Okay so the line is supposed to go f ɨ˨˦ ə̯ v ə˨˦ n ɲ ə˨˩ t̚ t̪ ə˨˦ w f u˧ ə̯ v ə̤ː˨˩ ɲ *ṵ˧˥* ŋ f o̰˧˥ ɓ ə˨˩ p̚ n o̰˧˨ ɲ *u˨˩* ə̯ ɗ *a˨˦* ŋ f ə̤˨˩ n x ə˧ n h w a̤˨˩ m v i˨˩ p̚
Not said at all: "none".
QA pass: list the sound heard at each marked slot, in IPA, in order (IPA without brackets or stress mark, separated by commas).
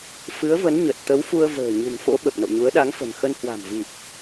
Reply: ṳ˨˩, u˨˦, a˨˦